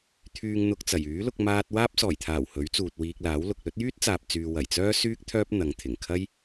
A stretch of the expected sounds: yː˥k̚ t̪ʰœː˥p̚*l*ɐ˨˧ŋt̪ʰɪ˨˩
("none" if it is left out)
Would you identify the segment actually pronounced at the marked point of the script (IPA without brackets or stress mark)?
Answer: n̪